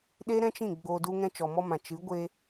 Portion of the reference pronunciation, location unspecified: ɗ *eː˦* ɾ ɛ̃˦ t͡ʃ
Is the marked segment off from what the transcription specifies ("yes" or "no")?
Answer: yes